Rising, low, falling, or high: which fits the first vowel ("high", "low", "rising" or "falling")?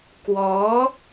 rising